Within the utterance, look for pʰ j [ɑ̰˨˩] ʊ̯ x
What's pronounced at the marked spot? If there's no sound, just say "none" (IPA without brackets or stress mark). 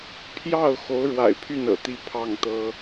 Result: ɑ˥˩